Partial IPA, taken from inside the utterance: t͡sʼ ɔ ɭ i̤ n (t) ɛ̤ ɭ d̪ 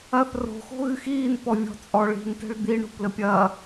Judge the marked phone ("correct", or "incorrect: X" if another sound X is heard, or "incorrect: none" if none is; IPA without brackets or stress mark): correct